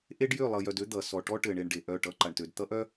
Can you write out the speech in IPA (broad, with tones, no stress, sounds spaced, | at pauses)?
ʔ e˦ ɖ j ø˦˨ lˠ ʌ˨ j œ˨ d ø˦ d̪ ʌ˨ s ɔ˨ ʈ ɔ˦ ʈ ɘ˨ ɳ e˨ ɳ ɖ e˨ ʔ œ˦˨ ʈ ʌ˦ ǃ a˨ ɳ t ø˨ d t̪ ʌ˦ ʔ œ˦